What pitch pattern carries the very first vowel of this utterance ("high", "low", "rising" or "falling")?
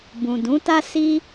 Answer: low